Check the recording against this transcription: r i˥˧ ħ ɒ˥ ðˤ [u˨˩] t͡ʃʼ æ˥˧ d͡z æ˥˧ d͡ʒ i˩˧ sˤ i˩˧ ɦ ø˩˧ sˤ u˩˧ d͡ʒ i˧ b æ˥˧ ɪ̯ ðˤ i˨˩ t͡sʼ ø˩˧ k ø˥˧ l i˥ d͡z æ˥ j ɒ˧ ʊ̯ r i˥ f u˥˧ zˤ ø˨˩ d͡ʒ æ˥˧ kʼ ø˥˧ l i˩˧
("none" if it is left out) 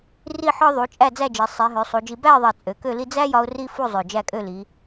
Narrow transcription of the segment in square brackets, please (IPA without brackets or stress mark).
u˩˧